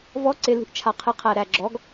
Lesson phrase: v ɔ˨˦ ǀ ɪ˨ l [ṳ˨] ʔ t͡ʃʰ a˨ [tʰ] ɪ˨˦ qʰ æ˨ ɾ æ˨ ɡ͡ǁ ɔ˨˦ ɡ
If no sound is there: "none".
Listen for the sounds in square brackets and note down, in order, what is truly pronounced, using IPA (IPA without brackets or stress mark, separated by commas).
ṳ˨, qʰ